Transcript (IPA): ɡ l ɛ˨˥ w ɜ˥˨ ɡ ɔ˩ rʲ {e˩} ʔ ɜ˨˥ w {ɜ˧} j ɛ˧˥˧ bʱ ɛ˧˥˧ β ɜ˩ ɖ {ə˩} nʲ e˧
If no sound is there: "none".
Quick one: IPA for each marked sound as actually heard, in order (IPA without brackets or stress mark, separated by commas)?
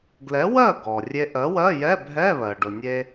e˧, ɜ˧˥˧, ʊ˩